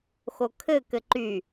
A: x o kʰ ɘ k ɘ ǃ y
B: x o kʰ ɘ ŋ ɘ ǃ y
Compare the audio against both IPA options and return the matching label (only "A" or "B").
A